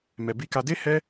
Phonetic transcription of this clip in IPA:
m ɛ˧ b i˧ k a˧ d e˦ h ɛ˦

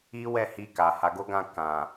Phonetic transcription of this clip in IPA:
i˦ w ɛ˦˨ h i˧ k a˨ h a˨˦ ɡ o˦ ɡ ã˦˨ k ã˨

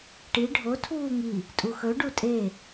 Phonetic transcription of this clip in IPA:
ʈ i ɖʱ o tʰ uː ŋ i | tʼ u x ɵ ɖ u tʼ e

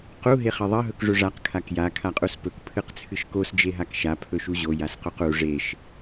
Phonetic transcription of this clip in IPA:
q u ɦ e χ ɐ ðˤ ɐ ɦ ɵ k ʐ ɵ ʐ a q kʰ a k j a kʰ a qʼ u s p ɵ k pʰ ɨ q t͡sʰ ɨ ʃ k o s d͡ʒ e ɦ a k ʃ a pʰ ɵ ʃ u ʑ o j a s q o q u ʐ e ʃ

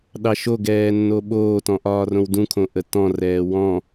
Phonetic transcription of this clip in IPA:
ɗ ɑ ʃ o ɡ ɛː nː o ɓ oː t ɔ̃ ʔ ɒː r õ w d ũ kʰ õ ʔ ə t ɔ̃ r ɛː w ɔ̃

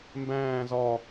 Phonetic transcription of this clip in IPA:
m b æ̃ː z ɒ

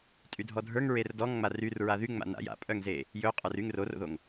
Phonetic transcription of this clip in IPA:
tʼ y dʱ ɔ dʱ ə˞ ŋ ɹ e r d ɔ ŋ ŋ͡m a r y r ɹ a ð y ŋ͡m a̰ n a̰ j a̰ pʼ œ ŋ z e | j ɵ qʼ ə˞ r y ŋ r o r o̰ ð o ŋ

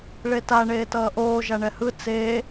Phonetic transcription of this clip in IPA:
ɭ e t a ɳ eː t ʌː ʔ oː ʒ a ɳ ɛ h ɯ t͡s eː

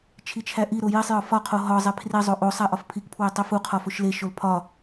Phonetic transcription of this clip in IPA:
t͡ʃʰ i t͡ʃʰ æ ʔ i ɾ o j i sˤ j ɒ f ɒ qʰ o ɦ ɒ zˤ e pʰ r i zˤ o ʔ o sˤ æ ʔ ɒ f pʰ i k pʰ w e tˤ i f u qʰ ɒ f o ʃ l e ʃ o l pʰ ɒ

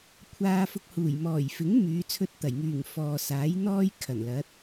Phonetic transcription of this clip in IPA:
kʷʰ aː˧ f ʊ˧ k̚ h uː˨˩ j m ɔː˨˩ j f ɪ˨˥ ŋ m yː˨˧ t͡sʰ ɵ˧ t̚ t̪ ɐ˨˩ j ŋ yː˨˩ ŋ f ɔː˨ s aː˨˥ j n̪ ɔː˥ j kʰ ɐ˨˩ n l ɐ˨˥ t̚

